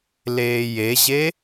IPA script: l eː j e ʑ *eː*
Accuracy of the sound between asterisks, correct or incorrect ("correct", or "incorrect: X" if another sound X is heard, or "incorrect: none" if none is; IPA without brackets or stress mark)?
incorrect: e